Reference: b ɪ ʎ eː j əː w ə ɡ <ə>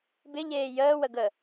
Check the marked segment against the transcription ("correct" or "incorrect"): correct